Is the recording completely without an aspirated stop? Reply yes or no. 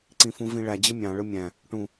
yes